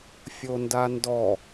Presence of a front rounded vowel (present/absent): absent